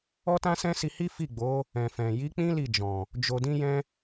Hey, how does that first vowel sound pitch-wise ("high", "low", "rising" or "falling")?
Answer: high